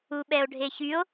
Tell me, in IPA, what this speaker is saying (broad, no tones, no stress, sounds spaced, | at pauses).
u ɓ ɛ o̯ ɖʱ e ç y o̯